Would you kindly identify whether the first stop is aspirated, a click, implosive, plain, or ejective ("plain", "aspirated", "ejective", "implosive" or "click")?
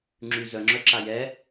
click